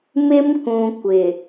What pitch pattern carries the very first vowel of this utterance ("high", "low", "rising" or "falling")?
high